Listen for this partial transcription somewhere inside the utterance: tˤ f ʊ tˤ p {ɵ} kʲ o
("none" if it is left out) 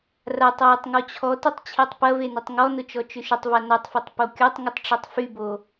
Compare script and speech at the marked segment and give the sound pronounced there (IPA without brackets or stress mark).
o